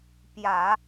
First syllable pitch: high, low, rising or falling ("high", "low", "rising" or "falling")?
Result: low